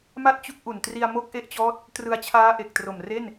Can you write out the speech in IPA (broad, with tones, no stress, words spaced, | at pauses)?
ma˥˩t̚t͡ɕu˦˥k̚ʔu˨˩n tri˧a̯mo˦˥k̚ʔe˦˥ʔt͡ɕɔː˦˥t̚ | trɯ˧a̯t͡ɕʰaː˦˥ ʔe˨˩k̚tro˨˩m re˥˩n